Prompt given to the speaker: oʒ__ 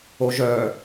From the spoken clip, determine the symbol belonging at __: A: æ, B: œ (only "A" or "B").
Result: B